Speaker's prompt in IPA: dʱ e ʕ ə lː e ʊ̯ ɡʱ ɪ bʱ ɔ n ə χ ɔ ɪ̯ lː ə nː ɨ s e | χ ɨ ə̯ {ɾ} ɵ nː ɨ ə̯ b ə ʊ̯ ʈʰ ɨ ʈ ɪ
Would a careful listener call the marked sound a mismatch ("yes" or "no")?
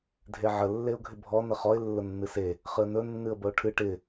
yes